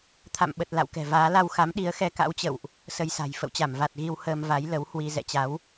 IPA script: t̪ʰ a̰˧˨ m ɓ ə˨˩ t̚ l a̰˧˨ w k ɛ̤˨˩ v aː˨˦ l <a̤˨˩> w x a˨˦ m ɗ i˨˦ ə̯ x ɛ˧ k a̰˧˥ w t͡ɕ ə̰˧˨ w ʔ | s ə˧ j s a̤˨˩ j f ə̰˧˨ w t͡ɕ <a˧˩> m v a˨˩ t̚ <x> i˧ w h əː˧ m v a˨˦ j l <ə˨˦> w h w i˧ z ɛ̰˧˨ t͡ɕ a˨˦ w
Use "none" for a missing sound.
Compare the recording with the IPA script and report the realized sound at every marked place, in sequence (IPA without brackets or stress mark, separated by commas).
a˧, a˧˩, ɣ, ə˨˦